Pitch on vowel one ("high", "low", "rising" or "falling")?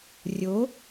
rising